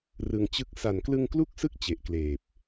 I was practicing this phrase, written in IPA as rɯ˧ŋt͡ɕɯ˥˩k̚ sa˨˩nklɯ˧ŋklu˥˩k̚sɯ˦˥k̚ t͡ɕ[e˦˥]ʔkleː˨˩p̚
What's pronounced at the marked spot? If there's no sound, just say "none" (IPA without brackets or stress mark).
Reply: e˨˩